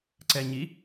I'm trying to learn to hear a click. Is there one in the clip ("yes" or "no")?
yes